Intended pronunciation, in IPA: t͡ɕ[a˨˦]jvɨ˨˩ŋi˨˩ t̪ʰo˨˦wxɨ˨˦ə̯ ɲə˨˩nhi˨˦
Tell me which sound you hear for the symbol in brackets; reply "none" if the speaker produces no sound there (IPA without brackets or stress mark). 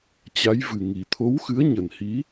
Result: a˨˦